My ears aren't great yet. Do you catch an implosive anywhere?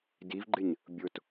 no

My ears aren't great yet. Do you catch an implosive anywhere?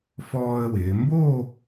no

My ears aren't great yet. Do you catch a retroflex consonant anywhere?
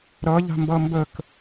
no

